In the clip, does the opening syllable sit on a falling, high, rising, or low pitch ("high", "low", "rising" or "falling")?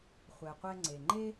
low